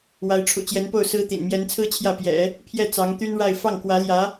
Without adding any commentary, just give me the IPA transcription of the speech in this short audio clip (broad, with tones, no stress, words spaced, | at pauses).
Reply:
wa˧˥ɪ̯ʈ͡ʂʰṵ˨˩t͡ɕjɛ˧˥npo˥˩ʊ̯ sɹ̩˥t̪ḭ˨˩n mjɛ˧˥nt͡sʰɹ̩˥t͡ɕʰjä˥˩ pjɛ̰˨˩˦ | pʰjɛ˥˩ t͡sɑ˧˥ŋt̪y˥nɻa˥˧ɪ̯ fɑ˥˩ŋkwä˧˥ljä˧˥